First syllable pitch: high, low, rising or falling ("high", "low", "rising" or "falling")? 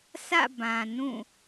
falling